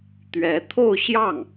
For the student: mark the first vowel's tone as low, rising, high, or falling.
rising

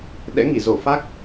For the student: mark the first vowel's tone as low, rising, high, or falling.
rising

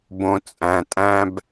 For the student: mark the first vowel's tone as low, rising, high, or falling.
high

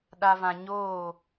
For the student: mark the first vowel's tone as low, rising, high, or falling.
low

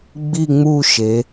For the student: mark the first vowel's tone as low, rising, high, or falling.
falling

